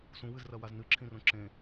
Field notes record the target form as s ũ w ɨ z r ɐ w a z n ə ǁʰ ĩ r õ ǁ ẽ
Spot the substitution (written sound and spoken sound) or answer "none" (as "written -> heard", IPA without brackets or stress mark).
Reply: ə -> ɨ